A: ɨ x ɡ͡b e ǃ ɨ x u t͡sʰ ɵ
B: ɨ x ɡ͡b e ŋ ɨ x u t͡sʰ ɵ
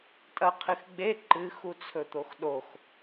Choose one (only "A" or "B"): A